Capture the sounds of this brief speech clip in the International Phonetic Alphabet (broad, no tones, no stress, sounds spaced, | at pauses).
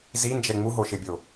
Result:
z i n d͡ʒ ɛ ŋ͡m u ɦ o ʃ ɪ bʲ o